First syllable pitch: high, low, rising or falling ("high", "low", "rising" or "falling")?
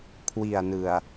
low